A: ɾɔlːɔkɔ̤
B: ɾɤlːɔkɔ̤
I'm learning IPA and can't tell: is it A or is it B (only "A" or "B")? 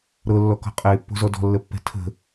B